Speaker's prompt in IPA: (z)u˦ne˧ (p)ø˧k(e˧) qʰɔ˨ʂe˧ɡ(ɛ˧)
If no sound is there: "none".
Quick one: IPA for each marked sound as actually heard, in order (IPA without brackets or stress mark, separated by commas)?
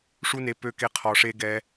ʂ, p, e˧, ɛ˧